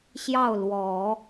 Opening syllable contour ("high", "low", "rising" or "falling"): falling